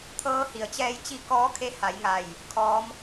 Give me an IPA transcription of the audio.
t̪ʰ ɤː˧˥ h i˩ ə̯ t͡ɕ ɛː˧ j t͡ɕ i˧˥ k ɔː˧˥ kʰ e˧˥ h a˩˧ j ŋ a˧˩ j | kʰ ɔː˧˥ m

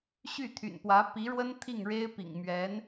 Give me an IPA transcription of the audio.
ɕ y˥˩ t̪ʰ y̰˨˩ n p w ä˧˥ p i˧˥ ɻ w ə˥ n t̪ʰ i˥˩ ŋ ɻ e˥ ɪ̯ p ḭ˨˩ ŋ m ɥ ɛ˧˥ n

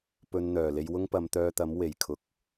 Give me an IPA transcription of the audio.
p ɵ˧ n n̪ œː˨˩ l e˧ j w ʊ˥ ŋ p ɐ˨˧ m t̪ œː˧ t̪ ɐ˨˥ m w e˨˩ j kʰ ʊ˨˥ k̚

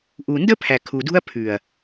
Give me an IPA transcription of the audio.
ʔ u˨ n d ə˦ pʰ æ˨ kʰ u˨ d ṳ˦ ɐ̯ pʰ ʉ˨ ɐ̯

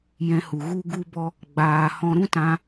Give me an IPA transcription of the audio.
j ɛ̃˧ h u˨ ɣ u˦ ɡ u˦ b ɔ˦ | ɡ͡b aː˧ h ɔ̃˧ ɾ ũ˦ t ã˧

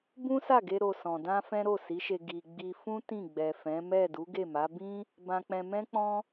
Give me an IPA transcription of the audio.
b ũ˦ s a˦˨ ɡ e˧ ɾ o˧ s ɔ̃˨ d ã˧ f ɛ̃˦ ɾ o˦˨ s i˨˦ ʃ e˧ ɡ i˨ ɡ͡b i˧ f ũ˦ t ĩ˦˨ ɡ͡b ɛ˨ f ɛ̃˨˦ m ɛ˦˨ d u˨˦ ɡ e˦˨ m a˨˦ b ĩ˦ | b ã˧ k͡p ɛ̃˧ m ɛ̃˦ k͡p ɔ̃˦

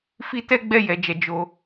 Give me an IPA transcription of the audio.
f i˦ t ɛ˦ ɡ͡b ɛ˦˨ j ɛ˨ d͡ʒ ɛ˨ d͡ʒ o˧

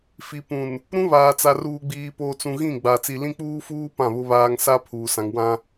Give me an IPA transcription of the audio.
f i˨ p ũ˨ n | ɾ ũ˦ β aː˨ t͡s a˨ r uː˨ ɡ͡b iː˨ p oː˨ t͡s ũ˨ ɣ ĩ˦˨ ɡ͡b a˨ t͡s i˨ l ĩ˦ k͡p uː˦ f uː˦ p ã˦˨ β ʊ˦ β aː˦ ŋ s a˦ pʰ uː˨ s ã˨ ŋ w ã˦

